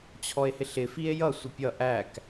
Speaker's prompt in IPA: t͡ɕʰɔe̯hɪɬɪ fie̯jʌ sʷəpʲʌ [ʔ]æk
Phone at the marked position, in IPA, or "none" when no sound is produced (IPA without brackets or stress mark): ʔ